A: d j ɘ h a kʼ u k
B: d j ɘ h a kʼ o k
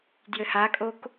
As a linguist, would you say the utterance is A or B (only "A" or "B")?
B